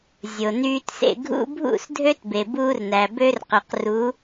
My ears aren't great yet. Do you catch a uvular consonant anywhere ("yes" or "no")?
yes